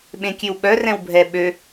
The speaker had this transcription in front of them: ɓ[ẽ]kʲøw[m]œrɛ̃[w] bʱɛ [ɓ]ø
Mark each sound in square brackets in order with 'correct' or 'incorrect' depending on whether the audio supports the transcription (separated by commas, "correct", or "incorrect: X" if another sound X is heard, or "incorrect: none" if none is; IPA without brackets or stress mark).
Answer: correct, incorrect: ɓ, correct, correct